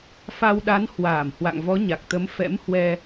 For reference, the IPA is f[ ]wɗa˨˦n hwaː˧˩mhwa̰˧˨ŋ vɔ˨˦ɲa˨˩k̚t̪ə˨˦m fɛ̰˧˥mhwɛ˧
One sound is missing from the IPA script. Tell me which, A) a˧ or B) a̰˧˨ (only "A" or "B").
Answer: A